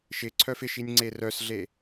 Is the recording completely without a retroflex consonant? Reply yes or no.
yes